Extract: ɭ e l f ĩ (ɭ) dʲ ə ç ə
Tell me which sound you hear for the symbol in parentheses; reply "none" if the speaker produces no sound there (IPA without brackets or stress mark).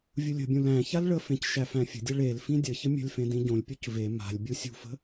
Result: none